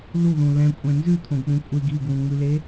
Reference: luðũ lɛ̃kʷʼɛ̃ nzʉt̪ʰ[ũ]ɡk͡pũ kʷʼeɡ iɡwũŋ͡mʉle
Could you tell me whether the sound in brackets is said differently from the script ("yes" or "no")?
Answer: yes